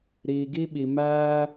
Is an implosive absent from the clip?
no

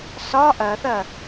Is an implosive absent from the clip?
yes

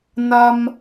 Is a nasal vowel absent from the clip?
yes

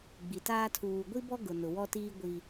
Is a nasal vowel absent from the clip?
yes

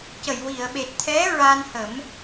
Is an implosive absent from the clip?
no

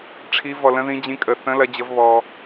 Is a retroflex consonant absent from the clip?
no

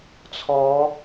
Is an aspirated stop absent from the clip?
no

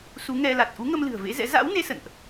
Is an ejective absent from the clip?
yes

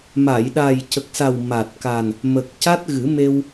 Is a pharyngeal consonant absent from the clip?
yes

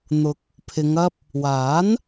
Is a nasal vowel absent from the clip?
yes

